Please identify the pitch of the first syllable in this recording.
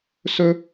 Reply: high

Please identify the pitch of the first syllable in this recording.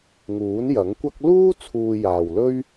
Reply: rising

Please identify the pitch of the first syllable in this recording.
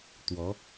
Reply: rising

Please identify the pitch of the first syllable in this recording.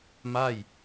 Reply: falling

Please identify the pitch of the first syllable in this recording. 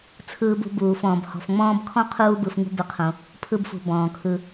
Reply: high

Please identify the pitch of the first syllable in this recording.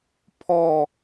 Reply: falling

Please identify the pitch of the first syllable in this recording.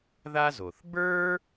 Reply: high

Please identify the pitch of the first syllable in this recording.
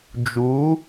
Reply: rising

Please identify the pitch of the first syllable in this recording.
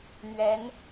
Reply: rising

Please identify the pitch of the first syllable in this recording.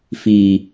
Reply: low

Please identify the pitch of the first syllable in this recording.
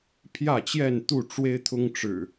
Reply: falling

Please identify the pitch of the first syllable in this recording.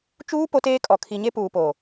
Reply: high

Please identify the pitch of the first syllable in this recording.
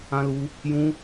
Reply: high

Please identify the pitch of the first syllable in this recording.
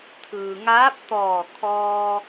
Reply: low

